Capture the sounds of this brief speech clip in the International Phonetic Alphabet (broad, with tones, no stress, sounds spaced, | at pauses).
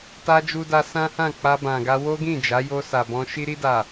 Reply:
t a˧ d͡ʒ u˦ d a˦ s ã˦ h ã˦˨ k͡p a˧ b ã˨ ɡ a˧ w o˦ ɡ ĩ˦˨ d͡ʒ a˨˦ j o˧ s a˨ b ɔ̃˧ ʃ i˧ ɾ i˧ d a˨